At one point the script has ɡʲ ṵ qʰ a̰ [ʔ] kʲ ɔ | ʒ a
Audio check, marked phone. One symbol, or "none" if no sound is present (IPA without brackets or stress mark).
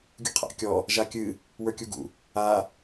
ʔ